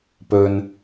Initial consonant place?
labial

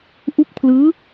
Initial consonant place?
glottal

